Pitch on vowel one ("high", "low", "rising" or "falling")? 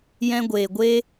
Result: high